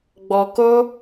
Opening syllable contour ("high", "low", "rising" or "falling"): low